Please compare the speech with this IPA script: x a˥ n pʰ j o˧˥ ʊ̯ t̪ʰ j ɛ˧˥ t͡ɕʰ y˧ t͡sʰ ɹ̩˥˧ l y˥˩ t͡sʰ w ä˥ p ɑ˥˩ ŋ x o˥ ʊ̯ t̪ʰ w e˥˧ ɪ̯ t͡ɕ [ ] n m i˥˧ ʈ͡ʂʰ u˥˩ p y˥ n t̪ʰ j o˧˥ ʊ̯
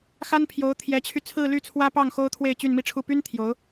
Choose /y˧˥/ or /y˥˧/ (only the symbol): y˥˧